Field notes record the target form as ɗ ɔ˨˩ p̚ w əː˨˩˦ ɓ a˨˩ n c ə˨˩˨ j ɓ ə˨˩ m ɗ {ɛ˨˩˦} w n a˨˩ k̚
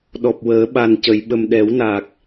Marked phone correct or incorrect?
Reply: correct